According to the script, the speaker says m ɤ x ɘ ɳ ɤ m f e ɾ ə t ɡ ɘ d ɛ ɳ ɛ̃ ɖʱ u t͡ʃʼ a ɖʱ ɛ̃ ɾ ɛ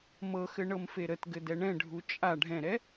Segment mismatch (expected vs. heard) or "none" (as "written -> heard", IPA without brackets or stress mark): none